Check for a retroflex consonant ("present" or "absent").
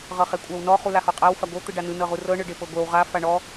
present